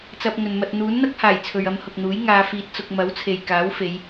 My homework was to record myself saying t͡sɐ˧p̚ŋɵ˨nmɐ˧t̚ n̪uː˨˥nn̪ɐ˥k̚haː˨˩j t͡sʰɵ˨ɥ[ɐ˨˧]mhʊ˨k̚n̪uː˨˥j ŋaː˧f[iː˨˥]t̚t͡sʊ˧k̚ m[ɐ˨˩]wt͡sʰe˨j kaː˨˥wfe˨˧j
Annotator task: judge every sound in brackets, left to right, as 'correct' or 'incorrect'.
incorrect, incorrect, incorrect

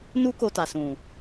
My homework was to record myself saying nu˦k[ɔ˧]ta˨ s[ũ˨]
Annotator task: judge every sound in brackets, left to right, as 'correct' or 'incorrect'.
incorrect, correct

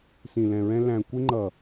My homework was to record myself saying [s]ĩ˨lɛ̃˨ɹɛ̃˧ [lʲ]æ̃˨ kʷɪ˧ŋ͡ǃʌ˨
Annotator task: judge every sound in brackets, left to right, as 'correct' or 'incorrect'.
correct, incorrect

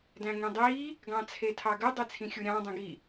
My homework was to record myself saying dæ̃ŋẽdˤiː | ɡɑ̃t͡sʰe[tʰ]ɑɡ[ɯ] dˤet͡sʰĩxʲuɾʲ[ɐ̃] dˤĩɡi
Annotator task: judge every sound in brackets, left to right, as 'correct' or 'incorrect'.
correct, correct, incorrect

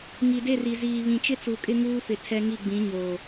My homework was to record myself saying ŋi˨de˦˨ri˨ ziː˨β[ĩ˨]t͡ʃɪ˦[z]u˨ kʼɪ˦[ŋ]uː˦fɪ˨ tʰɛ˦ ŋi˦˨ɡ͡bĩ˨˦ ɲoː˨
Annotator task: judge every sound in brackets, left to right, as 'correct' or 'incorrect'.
correct, incorrect, correct

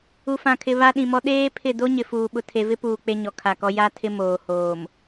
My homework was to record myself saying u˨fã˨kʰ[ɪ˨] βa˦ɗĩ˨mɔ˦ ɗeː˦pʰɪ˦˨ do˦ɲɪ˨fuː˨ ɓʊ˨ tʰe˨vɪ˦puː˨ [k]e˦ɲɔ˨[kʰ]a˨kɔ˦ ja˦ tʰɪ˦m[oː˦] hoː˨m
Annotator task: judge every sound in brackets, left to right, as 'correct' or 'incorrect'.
correct, incorrect, correct, incorrect

